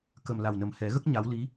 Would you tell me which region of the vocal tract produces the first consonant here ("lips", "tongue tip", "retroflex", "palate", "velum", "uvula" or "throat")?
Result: velum